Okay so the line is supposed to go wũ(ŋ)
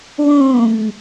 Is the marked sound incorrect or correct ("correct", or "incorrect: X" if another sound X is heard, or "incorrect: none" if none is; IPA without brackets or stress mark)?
correct